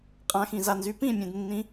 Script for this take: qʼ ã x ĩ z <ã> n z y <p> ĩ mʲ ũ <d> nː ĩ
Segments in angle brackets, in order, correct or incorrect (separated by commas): incorrect, correct, correct